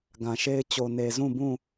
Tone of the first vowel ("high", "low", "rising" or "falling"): low